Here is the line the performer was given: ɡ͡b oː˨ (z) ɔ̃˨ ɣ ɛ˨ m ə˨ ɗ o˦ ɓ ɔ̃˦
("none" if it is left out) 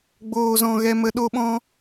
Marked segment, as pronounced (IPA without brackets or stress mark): z